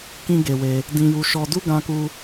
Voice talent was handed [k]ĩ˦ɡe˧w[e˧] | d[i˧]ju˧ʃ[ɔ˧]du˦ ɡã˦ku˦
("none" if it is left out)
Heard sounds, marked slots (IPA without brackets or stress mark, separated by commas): k, e˧, ĩ˧, ɔ˧